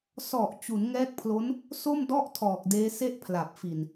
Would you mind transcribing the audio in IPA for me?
s ɔ˨˩ ʔ t͡ɕ u˩˦ n ŋ ɛː˦˥ k̚ pʰ l o˦˥ n | s o˥˩ m d ɔ˥˩ ʔ tʰ ɔː˨˩ k̚ d eː˦˥ s e˥˩ ʔ pʰ l a˨˩ p̚ f i˨˩ n

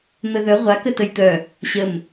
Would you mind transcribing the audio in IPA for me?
n̪ ə ð œ ʁʷ a k ə t ə j t̪ œ | ɕ ə m

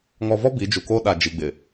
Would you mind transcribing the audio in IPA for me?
ŋ ɔ˨ v ɔ˦ b i˨˦ d͡ʒ u˨ k o˦ ɗ a˨ d͡ʒ i˨ ɡ͡b ɪ˨

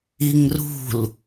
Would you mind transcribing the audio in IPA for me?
i ŋ r ṳ l

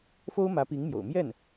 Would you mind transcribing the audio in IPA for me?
f o˥ ʊ̯ m ä˧˥ p i˧˥ ŋ m j o̰˨˩ ʊ̯ m j ɛ˥˩ n

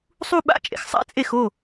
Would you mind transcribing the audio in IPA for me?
sˤ u˥˧ ɓ a̰˥˩ t͡ʃʼ ḛ˨ x sˤ a̰˥˧ t͡sʼ e˥˩ x o˥˩

